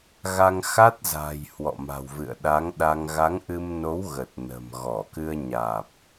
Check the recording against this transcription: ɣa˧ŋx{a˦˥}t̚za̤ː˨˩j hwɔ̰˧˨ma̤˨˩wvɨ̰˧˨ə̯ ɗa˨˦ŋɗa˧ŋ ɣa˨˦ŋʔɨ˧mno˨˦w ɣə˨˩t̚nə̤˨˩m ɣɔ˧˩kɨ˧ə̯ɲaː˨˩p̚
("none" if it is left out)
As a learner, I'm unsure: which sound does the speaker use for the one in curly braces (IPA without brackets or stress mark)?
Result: a˦˥